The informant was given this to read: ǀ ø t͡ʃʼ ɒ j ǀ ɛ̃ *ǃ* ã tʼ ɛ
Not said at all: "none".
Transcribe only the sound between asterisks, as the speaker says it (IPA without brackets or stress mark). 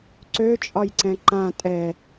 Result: ǃ